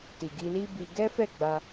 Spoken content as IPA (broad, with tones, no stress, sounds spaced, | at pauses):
t i˨ ɡ i˧ l i˦ b i˧ ɡ ɛ˦ f ɛ˦˨ ɡ͡b a˧